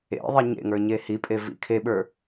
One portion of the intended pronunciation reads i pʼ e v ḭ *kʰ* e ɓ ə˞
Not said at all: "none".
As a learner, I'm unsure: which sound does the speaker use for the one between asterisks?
kʰ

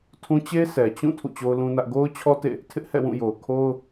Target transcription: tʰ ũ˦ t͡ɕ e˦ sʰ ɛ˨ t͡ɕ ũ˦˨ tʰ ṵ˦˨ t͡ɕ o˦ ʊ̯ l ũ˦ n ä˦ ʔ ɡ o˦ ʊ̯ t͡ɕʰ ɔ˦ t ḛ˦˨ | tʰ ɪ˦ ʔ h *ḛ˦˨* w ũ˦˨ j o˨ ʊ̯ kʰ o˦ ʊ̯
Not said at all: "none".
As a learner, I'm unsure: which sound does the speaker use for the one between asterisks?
ɛ̰˦˨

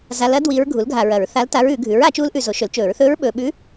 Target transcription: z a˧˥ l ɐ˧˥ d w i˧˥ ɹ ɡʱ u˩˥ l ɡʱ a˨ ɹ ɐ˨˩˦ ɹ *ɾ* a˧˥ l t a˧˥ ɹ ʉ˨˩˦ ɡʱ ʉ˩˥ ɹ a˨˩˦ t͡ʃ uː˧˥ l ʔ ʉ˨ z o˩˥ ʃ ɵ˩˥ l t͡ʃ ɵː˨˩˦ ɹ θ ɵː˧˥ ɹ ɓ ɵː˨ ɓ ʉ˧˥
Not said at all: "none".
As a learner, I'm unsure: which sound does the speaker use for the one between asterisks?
θ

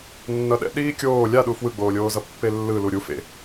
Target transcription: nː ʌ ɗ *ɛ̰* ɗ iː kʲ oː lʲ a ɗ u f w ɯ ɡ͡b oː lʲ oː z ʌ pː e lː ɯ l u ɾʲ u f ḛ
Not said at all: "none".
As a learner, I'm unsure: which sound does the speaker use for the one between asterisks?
ɛ̰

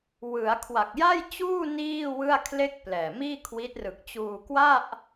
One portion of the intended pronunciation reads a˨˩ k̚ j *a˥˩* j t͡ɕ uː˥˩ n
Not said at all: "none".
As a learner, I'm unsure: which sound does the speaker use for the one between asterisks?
a˥˩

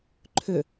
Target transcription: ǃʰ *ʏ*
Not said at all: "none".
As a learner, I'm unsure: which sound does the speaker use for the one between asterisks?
ʏ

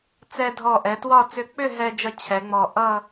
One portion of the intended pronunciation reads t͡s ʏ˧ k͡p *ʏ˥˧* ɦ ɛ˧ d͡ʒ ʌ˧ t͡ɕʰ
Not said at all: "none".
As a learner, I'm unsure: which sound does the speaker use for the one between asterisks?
ʏ˥˧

